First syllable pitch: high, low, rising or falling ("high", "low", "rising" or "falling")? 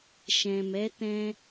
low